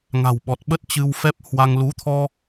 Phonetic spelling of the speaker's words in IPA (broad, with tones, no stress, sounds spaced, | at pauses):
ŋ a̤˨˩ w ɓ ɔ˨˩ t̚ ɓ ə˦˥ t̚ t͡ɕ ɨ˧ w f ɛ˦˥ p̚ h w a˧ ŋ l u˨˦ t̪ʰ ɔ˧